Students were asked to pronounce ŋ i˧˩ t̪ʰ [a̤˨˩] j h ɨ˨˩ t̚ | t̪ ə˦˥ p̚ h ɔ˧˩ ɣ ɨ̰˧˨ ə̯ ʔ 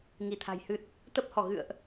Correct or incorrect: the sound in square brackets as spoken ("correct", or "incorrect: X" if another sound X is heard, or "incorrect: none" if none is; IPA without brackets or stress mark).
correct